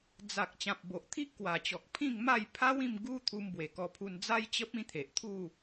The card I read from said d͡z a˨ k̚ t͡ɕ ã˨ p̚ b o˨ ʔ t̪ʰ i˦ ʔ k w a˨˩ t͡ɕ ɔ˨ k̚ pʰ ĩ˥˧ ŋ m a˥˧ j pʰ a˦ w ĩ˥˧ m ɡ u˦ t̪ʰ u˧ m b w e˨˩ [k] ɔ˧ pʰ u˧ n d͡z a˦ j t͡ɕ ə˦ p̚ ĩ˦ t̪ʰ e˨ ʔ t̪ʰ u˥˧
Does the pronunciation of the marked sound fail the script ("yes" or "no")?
no